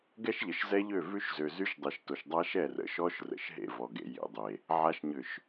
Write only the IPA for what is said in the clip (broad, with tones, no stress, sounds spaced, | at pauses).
ɡ ɛ˦ ʃ ʎ ə˨ ʃ z ɛ˦ ʎ ø˦˨ v ʉ˦ ʃ z ø˨ z y˦ ʃ dˤ e˨ ʃ t o˨ ʃ dˤ a˦ ʃ ɛ˦˨ r ə̰˨ ʃ ɔ˦ ʃ r ə̰˨ ʃ ɦ ḛ˦˨ v ɔ˨ ɡ ḛ˨ j ḛ˨ dˤ e˨ | ʕ a˨ ʃ ɲ ʏ˨ ʃ